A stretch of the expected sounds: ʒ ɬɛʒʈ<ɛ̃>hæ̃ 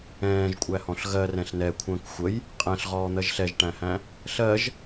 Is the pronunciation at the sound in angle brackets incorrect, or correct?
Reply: incorrect